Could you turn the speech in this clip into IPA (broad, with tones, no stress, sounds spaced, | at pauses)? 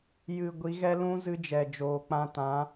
j ɨ˨ ɡʷ i˨˦ ɣ ɛ˦ l ũ˦ z ɨ˦ d͡ʒ ɛ˨ d͡ʒ oː˨ k͡p ã˧ t ã˨˦